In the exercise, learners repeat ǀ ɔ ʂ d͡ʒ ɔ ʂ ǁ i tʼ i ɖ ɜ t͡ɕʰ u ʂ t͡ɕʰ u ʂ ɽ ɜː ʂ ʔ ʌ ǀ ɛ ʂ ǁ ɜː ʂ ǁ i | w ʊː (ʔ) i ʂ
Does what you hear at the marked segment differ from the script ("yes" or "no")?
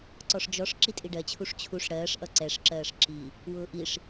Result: no